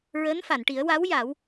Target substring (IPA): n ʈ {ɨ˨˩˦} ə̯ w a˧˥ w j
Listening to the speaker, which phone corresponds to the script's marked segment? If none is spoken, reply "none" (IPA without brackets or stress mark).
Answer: i˨˩˦